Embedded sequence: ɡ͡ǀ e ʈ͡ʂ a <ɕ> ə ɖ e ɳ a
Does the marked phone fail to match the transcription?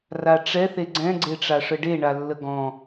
yes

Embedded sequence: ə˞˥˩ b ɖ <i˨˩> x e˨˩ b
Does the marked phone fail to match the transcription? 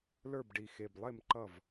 no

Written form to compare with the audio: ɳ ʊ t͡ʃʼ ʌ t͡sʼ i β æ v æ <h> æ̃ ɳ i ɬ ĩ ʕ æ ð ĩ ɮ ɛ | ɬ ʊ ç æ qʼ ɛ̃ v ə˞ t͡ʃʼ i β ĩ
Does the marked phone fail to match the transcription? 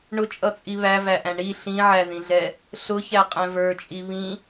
yes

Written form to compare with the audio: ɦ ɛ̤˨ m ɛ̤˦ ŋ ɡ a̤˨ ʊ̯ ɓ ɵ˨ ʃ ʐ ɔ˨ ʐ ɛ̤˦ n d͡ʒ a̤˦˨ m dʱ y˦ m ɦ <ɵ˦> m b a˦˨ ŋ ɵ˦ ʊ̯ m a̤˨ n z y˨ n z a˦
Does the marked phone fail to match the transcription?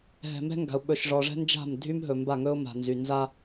yes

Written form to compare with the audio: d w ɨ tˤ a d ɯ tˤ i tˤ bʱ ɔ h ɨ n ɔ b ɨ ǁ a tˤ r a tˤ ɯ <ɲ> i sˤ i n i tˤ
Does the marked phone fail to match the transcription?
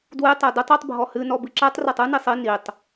yes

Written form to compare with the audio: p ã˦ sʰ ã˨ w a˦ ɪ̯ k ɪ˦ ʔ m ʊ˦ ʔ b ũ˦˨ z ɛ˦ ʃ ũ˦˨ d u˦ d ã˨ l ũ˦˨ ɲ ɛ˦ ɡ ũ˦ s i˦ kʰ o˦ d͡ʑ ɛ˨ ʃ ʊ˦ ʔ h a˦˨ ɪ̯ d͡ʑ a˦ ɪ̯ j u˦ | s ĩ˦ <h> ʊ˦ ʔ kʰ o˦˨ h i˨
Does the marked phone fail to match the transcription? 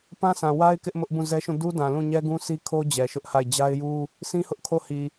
no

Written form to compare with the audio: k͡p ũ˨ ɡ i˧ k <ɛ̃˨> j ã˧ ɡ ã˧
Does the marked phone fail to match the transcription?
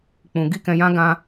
no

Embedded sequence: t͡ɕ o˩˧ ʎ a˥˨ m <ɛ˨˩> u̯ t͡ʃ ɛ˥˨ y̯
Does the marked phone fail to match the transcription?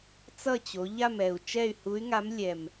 no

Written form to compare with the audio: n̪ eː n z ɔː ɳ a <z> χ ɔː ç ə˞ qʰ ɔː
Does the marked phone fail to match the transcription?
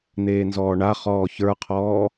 yes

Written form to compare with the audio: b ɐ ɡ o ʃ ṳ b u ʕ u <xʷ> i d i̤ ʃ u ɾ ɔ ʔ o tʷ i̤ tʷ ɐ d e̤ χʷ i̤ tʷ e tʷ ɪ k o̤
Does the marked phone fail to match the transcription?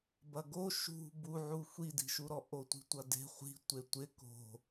no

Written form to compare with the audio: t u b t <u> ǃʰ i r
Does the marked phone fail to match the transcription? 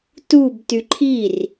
yes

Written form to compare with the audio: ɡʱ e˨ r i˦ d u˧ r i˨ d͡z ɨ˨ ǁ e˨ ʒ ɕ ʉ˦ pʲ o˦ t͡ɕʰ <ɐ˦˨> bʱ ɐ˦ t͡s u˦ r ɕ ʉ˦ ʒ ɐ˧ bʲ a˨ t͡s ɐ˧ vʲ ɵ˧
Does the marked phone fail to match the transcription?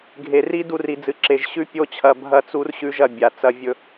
yes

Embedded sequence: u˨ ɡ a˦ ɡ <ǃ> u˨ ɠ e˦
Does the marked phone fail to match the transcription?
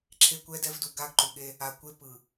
no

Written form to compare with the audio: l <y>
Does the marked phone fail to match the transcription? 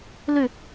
no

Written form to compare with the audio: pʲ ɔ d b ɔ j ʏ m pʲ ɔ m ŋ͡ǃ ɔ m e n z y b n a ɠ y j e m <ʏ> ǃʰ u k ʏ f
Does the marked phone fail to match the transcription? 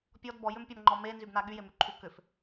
yes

